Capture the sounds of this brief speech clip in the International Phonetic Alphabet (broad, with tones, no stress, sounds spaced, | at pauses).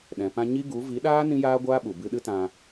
ɗ ɛ̃˨ p ã˧ ɲ i˦ ɡ u˨˦ v i˨˦ ɗ aː˦ n ĩ˦ j aː˦ ɡʷ aː˦ ɓ u˨ b ɨ˧ ɗ ɨ˦ t ã˧